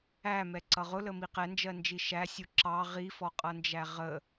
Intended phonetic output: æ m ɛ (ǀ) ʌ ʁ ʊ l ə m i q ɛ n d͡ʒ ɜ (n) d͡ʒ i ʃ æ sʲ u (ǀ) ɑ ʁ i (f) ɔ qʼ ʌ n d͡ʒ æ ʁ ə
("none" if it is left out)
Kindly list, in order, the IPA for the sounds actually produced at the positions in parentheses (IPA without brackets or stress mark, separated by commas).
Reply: ǀ, n, ǁ, f